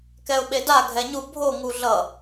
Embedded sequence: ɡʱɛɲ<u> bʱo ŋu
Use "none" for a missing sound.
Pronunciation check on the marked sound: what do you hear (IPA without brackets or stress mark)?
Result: u